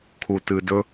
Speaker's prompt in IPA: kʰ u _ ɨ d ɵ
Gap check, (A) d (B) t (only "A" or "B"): B